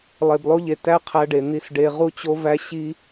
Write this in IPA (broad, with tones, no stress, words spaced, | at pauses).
lˠe˨blˠo˧ʎe˨ tæ˦qʰæ˧ɖe˨ n̪i˧sɖe˧ ʁu˦t͡ɕo˦væ˦ ɕi˦